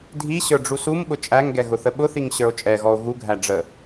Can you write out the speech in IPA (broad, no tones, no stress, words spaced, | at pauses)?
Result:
dʱiɕə˞ ɖ͡ʐusumɓʊ t͡ʃʼæŋɡɛ ɣʊθəɓʊθiŋ ɕə˞o̯t͡ʃʼɛɣɔo̯ ɣuɡʱæ ɖ͡ʐə